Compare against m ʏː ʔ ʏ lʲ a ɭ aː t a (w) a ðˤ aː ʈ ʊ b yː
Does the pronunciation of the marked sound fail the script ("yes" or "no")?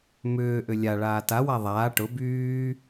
no